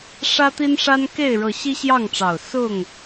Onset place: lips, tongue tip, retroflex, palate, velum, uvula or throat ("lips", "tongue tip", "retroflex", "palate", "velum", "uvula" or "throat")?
retroflex